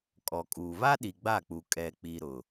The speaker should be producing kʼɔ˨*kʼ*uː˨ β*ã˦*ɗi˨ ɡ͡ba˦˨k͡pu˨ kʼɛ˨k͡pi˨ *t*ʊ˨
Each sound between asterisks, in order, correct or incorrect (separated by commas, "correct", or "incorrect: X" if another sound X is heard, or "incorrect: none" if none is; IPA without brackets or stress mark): correct, incorrect: a˦, incorrect: ɾ